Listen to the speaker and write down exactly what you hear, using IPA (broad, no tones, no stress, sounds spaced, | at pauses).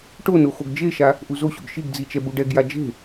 ʈ o n o x o ɡ d͡ʒ e ʃ a | ʔ u z o ɕ o̰ ɡ ʃ i ɡ d͡z i t͡ʃ ɛ b u ɖ ɛ ɡ j a d͡ʒ e̤